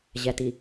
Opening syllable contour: low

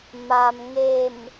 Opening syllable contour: low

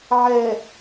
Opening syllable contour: low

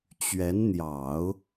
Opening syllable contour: rising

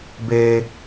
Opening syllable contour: high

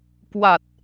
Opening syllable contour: low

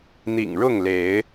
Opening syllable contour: low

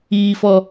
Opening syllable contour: low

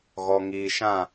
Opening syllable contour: low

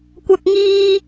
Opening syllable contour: high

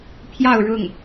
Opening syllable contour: falling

